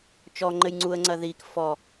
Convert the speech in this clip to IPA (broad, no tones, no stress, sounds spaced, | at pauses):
t͡ʃ ɔ ŋ͡ǃ ɘ j ŋ͡ǀ u ə̯ ŋ͡ǀ ɐ ð i k f ɔ